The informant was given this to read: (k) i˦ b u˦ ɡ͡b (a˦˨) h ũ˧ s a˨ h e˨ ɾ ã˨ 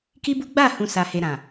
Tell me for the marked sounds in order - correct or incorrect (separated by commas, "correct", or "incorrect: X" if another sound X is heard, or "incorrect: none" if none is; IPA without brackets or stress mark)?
correct, correct